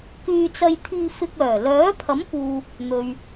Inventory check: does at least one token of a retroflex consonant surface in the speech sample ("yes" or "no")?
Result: no